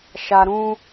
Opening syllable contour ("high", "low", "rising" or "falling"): low